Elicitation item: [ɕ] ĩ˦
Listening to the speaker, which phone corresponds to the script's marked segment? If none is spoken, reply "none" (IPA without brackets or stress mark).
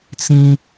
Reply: t͡s